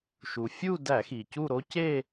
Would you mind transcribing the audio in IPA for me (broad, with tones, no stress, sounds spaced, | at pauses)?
ʃ u˩ fʲ uː˥˧ d æ˧˩˧ x iː˩ c u˥˧ ɾ o˥ c e˥˧